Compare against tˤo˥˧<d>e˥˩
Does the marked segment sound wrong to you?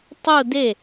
no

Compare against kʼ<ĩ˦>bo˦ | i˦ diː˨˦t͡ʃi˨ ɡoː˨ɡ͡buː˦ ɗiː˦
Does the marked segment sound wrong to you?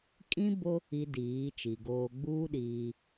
no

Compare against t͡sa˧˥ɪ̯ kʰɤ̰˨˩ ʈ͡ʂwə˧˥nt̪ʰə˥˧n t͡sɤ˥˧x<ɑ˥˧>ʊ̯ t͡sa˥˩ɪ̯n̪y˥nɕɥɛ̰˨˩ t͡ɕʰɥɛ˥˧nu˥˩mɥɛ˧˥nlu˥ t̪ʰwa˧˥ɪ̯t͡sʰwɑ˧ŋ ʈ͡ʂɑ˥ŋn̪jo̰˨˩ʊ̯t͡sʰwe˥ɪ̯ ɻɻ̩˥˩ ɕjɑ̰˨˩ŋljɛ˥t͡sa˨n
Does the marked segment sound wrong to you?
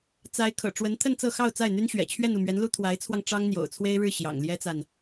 no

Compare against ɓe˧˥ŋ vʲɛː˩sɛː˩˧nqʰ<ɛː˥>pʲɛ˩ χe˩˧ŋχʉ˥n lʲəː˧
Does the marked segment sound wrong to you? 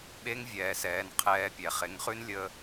yes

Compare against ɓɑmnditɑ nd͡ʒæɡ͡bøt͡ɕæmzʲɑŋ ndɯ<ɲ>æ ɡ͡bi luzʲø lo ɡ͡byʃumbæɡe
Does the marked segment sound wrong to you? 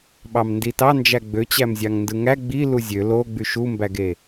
yes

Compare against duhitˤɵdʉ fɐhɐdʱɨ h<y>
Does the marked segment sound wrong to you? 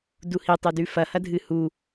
yes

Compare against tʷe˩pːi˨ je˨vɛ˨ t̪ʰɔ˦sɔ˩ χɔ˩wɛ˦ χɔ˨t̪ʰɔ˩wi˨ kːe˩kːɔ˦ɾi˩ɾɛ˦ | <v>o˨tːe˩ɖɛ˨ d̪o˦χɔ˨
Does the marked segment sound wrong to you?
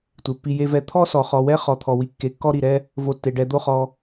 no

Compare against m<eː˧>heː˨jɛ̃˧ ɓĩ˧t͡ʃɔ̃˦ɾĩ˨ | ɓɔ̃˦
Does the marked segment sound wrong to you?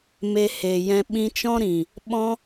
yes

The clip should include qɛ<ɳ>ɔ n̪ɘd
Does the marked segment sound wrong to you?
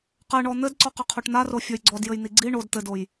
no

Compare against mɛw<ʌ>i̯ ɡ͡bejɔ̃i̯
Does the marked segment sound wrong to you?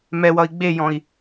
no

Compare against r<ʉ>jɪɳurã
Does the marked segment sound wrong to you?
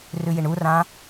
no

